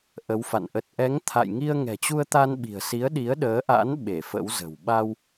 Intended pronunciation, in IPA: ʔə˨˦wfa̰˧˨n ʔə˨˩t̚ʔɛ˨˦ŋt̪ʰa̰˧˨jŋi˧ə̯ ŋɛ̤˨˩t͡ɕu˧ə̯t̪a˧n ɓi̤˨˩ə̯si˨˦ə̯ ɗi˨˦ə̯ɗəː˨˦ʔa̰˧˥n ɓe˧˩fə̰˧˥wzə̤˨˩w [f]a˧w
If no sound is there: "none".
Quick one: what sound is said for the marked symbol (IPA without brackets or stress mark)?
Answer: ɓ